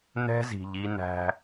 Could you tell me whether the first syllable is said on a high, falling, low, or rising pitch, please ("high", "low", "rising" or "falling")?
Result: high